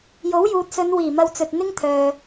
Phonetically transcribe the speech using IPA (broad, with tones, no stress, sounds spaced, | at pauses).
j o˨˥ w j uː˨ t̚ s ɵ˨˧ n w iː˨˩ m ɐ˧ w t͡s ɵ˨ t̚ n̪ ɪ˥ ŋ t̪ʰ œː˨